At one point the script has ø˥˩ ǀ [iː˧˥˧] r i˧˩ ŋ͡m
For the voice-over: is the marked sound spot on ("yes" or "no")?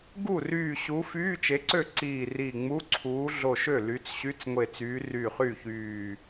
no